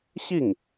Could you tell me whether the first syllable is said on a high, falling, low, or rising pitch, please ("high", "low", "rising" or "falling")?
falling